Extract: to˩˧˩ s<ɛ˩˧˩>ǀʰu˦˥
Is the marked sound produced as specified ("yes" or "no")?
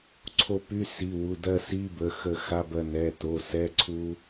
no